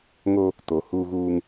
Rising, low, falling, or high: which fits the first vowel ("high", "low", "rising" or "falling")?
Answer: high